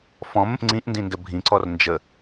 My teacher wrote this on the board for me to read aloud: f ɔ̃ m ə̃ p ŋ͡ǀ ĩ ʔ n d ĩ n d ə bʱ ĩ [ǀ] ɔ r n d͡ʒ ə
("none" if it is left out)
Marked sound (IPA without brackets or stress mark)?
ǀ